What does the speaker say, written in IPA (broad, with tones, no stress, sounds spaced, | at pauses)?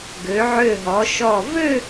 ɡ ø˩˧ ʕ ø˧˩ ɦ ɔ˩˧ ʃ ɔ˧˩ v ø˥˧